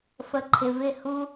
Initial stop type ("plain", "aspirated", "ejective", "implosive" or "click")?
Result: click